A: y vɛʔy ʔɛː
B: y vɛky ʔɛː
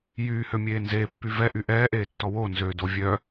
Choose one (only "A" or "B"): A